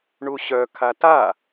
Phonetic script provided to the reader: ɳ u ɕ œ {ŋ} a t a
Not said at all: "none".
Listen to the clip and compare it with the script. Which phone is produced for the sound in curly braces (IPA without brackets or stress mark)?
kʰ